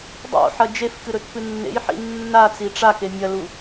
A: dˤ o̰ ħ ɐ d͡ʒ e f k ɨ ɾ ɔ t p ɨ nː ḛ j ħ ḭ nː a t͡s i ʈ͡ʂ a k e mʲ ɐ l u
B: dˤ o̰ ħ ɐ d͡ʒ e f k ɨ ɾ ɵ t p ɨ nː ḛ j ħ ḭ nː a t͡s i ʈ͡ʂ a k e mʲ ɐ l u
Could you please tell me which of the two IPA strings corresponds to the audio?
B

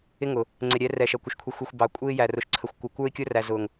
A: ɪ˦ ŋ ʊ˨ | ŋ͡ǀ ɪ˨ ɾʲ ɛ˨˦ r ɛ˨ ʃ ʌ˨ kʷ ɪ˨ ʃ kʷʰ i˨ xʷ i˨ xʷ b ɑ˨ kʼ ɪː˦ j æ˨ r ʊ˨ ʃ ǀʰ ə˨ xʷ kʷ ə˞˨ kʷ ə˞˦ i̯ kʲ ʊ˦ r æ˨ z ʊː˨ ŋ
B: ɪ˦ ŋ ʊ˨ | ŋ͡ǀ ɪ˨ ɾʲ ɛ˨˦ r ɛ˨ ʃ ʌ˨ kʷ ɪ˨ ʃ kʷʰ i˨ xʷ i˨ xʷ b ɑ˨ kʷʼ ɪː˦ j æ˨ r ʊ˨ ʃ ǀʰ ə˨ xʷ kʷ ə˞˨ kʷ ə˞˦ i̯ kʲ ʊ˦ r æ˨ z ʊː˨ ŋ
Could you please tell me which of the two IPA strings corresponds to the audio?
B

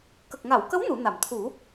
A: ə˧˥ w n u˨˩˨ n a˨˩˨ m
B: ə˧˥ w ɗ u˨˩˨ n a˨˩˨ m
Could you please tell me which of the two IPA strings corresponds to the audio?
A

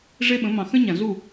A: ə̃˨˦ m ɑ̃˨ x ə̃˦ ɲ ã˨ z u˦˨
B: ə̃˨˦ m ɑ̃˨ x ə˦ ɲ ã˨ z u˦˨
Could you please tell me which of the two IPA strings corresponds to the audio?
A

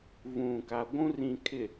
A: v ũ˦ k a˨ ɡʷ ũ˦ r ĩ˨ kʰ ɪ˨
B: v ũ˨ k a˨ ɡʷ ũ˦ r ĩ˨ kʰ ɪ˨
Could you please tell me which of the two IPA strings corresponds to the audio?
B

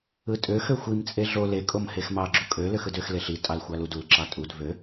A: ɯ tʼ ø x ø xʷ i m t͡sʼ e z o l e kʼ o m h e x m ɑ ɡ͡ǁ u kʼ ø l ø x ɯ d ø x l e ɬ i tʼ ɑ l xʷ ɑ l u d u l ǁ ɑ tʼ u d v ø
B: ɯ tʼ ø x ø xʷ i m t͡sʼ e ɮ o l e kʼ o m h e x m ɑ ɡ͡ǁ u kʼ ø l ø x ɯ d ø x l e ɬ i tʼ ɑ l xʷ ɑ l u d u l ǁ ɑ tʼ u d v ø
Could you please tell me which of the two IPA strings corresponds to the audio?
B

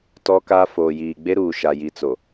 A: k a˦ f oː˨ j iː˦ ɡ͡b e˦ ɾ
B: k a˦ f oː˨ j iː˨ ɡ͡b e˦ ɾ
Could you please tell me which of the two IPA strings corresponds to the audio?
B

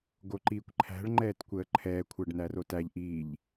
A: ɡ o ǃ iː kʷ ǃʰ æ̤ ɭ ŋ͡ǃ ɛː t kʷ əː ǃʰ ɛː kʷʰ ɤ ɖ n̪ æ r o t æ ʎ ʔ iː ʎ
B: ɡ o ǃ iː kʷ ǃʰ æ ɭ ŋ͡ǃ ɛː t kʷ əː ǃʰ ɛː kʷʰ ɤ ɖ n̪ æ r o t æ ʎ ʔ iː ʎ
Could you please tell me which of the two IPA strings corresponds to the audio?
A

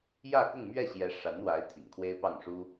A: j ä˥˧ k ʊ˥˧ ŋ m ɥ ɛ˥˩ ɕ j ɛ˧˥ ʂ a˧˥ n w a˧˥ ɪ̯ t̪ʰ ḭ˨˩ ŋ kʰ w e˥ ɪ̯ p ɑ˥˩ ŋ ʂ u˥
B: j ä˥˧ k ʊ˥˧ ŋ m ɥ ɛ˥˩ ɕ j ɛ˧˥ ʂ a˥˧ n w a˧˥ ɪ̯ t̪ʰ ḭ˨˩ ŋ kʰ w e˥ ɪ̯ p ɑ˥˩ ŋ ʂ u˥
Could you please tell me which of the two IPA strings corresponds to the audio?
A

